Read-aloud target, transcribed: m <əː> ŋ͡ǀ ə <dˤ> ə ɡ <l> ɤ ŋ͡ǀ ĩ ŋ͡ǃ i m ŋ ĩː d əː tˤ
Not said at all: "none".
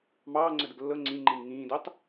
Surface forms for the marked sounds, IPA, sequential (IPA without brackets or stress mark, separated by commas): ɑː, d, lː